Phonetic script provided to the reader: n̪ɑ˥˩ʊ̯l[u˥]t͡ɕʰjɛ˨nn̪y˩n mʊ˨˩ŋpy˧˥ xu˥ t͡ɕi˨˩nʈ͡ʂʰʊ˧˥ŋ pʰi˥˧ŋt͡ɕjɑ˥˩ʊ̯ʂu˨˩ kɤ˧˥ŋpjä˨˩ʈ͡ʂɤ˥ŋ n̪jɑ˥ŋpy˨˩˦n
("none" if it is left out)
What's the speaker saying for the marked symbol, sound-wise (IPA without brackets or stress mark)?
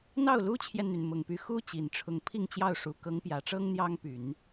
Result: u˥